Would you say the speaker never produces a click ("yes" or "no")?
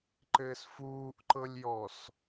no